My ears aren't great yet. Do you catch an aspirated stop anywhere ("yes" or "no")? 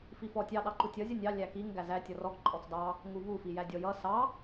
no